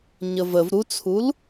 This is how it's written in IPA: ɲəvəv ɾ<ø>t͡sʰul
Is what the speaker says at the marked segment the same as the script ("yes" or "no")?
no